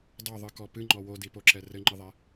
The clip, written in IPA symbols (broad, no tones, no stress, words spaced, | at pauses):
dˤuðˤɨkɔ pɨŋ͡ǃɔ wodipoǁɛ rɘŋ͡ǃɨðˤɛ